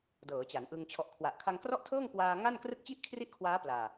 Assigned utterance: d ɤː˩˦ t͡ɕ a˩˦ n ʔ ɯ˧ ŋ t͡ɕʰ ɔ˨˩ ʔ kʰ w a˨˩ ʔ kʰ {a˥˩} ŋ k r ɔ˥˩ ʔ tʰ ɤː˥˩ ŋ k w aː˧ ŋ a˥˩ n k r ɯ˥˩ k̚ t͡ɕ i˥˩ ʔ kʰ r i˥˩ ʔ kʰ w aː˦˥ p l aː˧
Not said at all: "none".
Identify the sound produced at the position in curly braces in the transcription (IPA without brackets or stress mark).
a˧